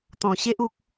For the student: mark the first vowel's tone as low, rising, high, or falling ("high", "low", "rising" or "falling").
low